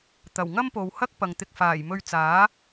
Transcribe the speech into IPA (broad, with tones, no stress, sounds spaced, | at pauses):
t̪ ɐ˨˩ w ŋ ɐ˥ m p o˨ w h ɐ˥ k̚ p ɐ˨ ŋ t̪ ɪ˧ k̚ f aː˨˩ j m ɵ˧ ɥ t͡s aː˨˥